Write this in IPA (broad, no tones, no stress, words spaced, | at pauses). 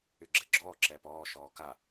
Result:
yɡ͡ǁɛɡ͡ǁɔː ǁɛːpɔː ʃɔːka